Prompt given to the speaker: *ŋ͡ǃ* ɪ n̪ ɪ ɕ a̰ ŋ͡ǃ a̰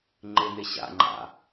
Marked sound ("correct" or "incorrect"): correct